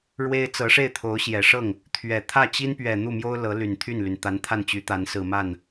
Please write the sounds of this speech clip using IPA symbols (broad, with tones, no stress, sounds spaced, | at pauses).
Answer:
ɻ w e˥ ɪ̯ t͡s ɤ˧˥ ʂ e˥˩ ɪ̯ t̪ʰ o˧˥ ʊ̯ ɕ j ɛ˨˩ ʂ ɤ˥˩ ŋ | t̪ʰ ɥ ɛ˨˩ t̪ʰ ä˥˩ t͡ɕ i˥ n p ɥ ɛ˨˩ n̪ u˥˩ m j o˥ ʊ̯ l ɤ˧˥ l y˨˩ n t̪ʰ y˥˩ n l y˩ n t̪ a˧˥ n t̪ʰ a˥˩ n t͡ɕ y˧˥ t̪ a˧˥ n s ɹ̩˨˩ m a˥˩ n